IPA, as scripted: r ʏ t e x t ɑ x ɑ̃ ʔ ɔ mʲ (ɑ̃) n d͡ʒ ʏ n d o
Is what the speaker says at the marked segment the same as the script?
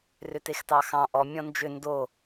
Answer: no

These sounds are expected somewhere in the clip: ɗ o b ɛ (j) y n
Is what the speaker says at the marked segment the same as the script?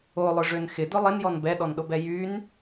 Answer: yes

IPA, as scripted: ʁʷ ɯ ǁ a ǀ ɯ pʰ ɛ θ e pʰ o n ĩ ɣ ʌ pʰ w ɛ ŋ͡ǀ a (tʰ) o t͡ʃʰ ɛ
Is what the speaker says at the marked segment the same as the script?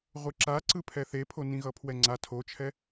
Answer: yes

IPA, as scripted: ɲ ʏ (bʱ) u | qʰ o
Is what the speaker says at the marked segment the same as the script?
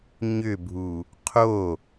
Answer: yes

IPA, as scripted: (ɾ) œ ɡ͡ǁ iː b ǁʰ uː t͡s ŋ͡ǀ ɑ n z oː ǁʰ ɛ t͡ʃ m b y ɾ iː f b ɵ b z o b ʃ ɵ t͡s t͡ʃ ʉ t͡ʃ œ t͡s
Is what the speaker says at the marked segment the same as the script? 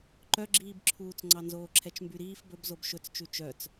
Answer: no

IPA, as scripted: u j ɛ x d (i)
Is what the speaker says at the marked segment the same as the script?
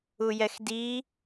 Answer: yes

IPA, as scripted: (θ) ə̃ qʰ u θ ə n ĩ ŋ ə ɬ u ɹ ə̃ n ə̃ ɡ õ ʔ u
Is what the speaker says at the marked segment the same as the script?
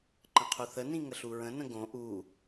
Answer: no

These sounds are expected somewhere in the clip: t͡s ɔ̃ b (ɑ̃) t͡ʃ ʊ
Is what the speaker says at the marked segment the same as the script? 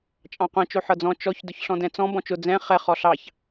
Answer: no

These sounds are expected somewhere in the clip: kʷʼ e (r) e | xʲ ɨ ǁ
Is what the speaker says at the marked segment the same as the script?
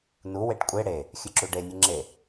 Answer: no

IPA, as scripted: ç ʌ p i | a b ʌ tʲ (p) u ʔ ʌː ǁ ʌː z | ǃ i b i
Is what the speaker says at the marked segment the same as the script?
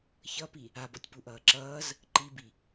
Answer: yes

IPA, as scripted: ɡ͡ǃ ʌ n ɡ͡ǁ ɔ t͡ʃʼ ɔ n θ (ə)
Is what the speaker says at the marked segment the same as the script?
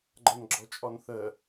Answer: yes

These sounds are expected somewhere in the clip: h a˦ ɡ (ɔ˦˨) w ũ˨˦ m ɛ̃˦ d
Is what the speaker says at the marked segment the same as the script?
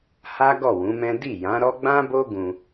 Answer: yes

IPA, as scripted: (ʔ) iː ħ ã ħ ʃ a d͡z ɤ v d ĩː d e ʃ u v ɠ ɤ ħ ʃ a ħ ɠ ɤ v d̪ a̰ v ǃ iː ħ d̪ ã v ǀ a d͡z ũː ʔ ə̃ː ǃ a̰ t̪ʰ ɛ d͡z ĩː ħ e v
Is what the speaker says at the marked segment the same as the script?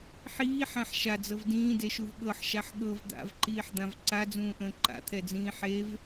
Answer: no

